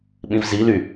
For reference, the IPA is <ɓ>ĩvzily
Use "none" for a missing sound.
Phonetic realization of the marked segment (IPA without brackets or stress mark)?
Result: ɓ